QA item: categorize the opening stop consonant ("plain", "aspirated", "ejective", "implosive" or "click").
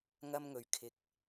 aspirated